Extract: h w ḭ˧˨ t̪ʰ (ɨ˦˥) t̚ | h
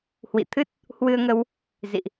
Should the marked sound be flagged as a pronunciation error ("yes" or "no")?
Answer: no